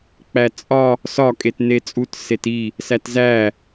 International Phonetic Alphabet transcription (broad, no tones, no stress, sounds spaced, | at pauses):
k͡p æ t͡sʼ ɒ | s ɒ kʼ e t n e t͡sʼ u t s e t i | s æ t z æ